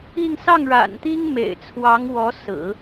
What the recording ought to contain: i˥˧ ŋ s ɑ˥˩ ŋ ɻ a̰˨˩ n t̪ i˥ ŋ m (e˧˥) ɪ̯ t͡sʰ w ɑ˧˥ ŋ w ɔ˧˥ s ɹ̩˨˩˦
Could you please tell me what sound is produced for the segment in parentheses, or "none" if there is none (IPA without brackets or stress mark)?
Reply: ḛ˨˩